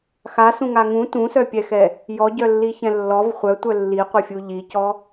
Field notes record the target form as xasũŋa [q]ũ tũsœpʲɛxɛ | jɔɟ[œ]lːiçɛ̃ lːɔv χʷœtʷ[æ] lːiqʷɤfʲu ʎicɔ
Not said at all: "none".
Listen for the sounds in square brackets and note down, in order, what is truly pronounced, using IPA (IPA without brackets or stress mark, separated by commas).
ŋ, œ, œ